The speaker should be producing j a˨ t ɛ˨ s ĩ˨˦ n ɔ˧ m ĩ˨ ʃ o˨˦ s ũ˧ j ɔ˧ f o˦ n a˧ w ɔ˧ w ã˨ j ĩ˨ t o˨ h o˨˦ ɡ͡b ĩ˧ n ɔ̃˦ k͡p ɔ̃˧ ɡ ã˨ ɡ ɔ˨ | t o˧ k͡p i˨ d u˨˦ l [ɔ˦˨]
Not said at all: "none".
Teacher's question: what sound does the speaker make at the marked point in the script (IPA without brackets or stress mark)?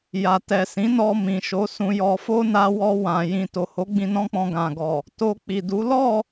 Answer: ɔ˦˨